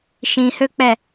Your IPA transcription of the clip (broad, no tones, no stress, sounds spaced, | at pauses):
ʃ ĩ h ø k͡p ɛ